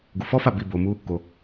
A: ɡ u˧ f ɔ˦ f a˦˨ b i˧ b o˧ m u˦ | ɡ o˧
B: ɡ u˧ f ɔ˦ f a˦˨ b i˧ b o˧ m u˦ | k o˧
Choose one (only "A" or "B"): B